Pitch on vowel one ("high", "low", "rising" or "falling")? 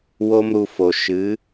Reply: high